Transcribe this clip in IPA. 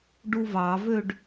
ɖ u v ɑ v ø ɖ

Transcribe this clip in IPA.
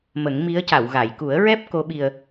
m ə˨˩˦ ŋ m i˧˥ ə̯ c a˨˩˨ w ɣ a˨˩˨ j k u˨˩˦ ə̯ ɹ ɛ˦˥ p̚ k o˧˥ ɓ i˧ ə̯

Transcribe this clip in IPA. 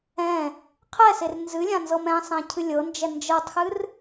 ɛ̃ | qʰ ɛ s e r n z ɨ lʲ ã n z ɤ m ɛ̃ sˤ ɛ̃ cʰ ɨ lʲ ɤ n d͡ʒ ɛ n d͡ʒ ɤ tˤ x ɨ r

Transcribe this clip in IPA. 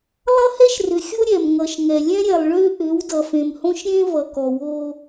lˠ ʌ˦ h ɛ˦ ʃ r ʏ˨ xʲ o˦ ɾʲ ɛ˨ m ŋ ʌ˨ ʃ ŋ ɛ˨ lʲ ɛ̃˦ ɾʲ ɛ˨ lˠ ɭ ʏː˦ ʔ ʏː˨˦ w d ʌ˨ f ẽ˨ m h õ˦ ʃ ɾʲ ẽ˦ v ʌ˨ k ɔ˨ w o˦

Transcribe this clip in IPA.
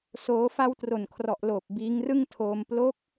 s oː˦˥ f a˧ w t r o˨˩ n kʰ r ɔ˨˩ ʔ l oː˨˩ p̚ b iː˦˥ ŋ r ɯ˥˩ ŋ tʰ oː˧ m p l o˦˥ k̚

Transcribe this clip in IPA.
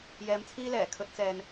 j ɛː˨˧ m t͡sʰ iː˧ l ɛː˨˩ kʰ ɵ˧ t̚ t͡s ɛː˨ n

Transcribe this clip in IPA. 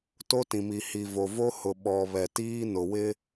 t o˦ t ĩ˨ m i˨ h i˨ v o˨ v o˦ h ʊ˨ ɓ ɔ˨ β ɛ˨ t iː˦ n ʊ˨ w ɪ˦

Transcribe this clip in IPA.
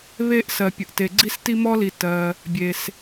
β e˦ ʔ s ɜ˨ pʲ ə˨ ʔ t e˨ ɡ͡ǀ i˦ s t i˦ m ɔ˦ l i˨ t ɜ˨ | bʲ e˨ s

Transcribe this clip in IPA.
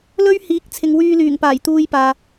l ɵ˥ ɥ h iː˨˥ k̚ t͡sʰ ɪ˨ ŋ w yː˧ l yː˨˩ ŋ p aː˨˩ j t̪ uː˧ j p aː˨

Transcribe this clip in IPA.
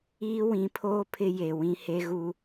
iː˦ w ĩ˨˦ pʰ oː˦ pʰ ɪ˦ j e˨ w ĩ˦ h e˦ ɣ u˦

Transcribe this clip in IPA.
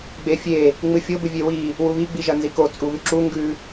ɡ͡b e fʲ e | ŋ͡m ɨ fʲ o b ɨ vʲ e w i | w u β i ɡ͡b i ʒ ɐ n z i k o t͡sʼ u β ʉ ǁ u ŋ ɡ ʉ

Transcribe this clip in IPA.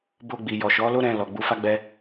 b o˧ ɡ͡b i˨ j ɔ˨ ʃ ɔ˨˦ l o˦ ɾ ɛ̃˧ l ɔ˨ ɡ͡b u˨˦ f a˦ ɡ͡b ɛ˦

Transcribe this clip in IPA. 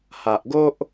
h a˨ ʔ ɡ o˦ ʔ

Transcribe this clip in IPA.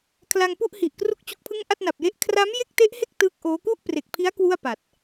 kʰ l a˧ ŋ p u˥˩ ʔ h i˨˩ ʔ k r u˥˩ k̚ t͡ɕ u˦˥ k̚ pʰ ɯ˥˩ ŋ ʔ a˥˩ t̚ n a˨˩ p̚ j e˦˥ ʔ kʰ r a˦˥ m j e˥˩ k̚ t e˦˥ ʔ h e˥˩ k̚ t ɯː˦˥ k̚ ʔ oː˦˥ k u˥˩ ʔ p r e˨˩ k̚ pʰ i˦˥ a̯ k w u˥˩ a̯ p a˨˩ t̚

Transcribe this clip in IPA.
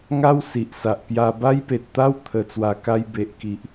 ŋ a˦ w s i˨ ʔ s a˨ ʔ p j a˧ b a˦ j p e˨ t̚ t̪ a˦ w t̪ʰ ə˨˩ t͡s w a˨˩ k a˧ j b e˨ ʔ k i˨ ʔ

